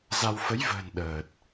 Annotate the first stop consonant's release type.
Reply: implosive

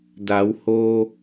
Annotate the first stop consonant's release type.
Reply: plain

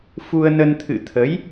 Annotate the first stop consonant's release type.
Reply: aspirated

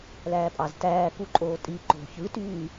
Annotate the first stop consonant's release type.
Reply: ejective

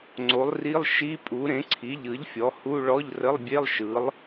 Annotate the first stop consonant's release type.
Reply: click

